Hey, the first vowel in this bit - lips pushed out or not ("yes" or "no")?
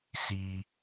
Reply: no